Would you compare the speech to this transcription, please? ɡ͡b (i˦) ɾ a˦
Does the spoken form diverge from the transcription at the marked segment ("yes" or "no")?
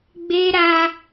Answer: yes